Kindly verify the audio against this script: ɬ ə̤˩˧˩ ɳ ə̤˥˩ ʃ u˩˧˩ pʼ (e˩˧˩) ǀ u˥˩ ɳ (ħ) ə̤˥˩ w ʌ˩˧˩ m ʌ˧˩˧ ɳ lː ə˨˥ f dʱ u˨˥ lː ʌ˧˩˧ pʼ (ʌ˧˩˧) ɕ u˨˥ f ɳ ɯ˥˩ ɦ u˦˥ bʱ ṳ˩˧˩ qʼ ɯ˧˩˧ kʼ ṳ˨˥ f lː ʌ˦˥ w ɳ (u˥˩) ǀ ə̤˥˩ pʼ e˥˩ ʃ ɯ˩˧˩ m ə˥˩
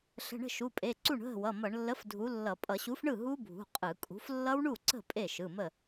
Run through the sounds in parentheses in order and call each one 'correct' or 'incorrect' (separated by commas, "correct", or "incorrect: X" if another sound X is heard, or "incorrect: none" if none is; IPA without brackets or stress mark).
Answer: correct, incorrect: ɦ, correct, correct